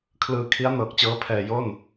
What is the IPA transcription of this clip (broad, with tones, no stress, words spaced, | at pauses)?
kʰlɯː˧kʰi˦˥a̯ nɤː˨˩k̚t͡ɕɤː˦˥pʰɛː˨˩ jo˥˩n